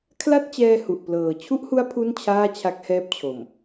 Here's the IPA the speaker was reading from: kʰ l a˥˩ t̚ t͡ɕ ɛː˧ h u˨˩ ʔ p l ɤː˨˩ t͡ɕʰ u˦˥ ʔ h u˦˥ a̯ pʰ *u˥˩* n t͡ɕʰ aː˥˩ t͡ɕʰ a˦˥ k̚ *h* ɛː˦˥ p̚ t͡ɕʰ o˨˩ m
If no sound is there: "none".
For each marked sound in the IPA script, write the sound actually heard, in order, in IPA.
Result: u˥˩, h

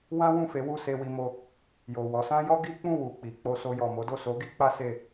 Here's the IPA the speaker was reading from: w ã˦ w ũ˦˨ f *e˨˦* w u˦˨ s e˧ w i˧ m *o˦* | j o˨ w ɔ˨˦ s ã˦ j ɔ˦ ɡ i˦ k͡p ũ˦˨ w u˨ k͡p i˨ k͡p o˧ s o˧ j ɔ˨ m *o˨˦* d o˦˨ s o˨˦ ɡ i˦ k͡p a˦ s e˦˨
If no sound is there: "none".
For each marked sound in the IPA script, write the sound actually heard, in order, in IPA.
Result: e˨˦, o˧, o˨˦

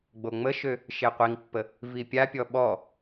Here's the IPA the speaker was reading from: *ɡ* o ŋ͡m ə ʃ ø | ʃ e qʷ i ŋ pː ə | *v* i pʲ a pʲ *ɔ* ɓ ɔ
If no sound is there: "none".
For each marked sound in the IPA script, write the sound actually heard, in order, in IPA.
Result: ɡ͡b, v, ɔ

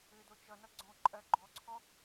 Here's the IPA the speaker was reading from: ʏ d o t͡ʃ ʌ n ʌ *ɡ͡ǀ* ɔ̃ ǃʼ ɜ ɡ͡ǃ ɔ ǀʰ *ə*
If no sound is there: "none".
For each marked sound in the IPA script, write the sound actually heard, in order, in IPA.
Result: ɡ͡ǀ, ɔ

